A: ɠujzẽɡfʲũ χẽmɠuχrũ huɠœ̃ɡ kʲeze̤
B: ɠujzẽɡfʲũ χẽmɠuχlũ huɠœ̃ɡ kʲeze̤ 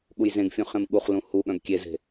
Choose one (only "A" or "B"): B